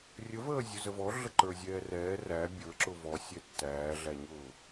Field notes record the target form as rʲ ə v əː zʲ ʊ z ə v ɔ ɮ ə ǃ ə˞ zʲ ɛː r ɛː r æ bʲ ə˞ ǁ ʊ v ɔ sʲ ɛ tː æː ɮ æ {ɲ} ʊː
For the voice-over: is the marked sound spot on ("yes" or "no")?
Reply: yes